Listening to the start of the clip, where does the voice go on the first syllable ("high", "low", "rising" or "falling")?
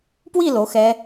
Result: falling